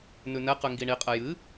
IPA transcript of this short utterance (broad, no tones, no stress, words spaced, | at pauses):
nʉnɛqʉ ŋɡiɳiqʼɛ jɨ